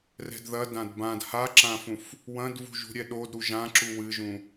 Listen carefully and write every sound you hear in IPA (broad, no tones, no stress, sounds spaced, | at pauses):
r ɛ̤ d ð ɐ d ã d b ã d h a ǁ ã f ũ f | w ɐ̃ d v ṳ ʒ ṳ ɾʲ ɛ ɗ o d ɾ u ʒ ã ǁ u w ɨ ʒ ũ